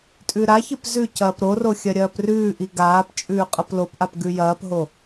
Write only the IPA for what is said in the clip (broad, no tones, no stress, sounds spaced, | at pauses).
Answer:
tʼ ʉ ɾ a ç ɨ p z ʉ c ɐː p ɾ o r o xʲ ɐ ɾʲ ɐː p r ʉː ʔ i ɡ aː p t͡ʃʼ ʉː qʼ ɐ p l o p ʔ a p ɡ ʉ j ɐː p ɦ o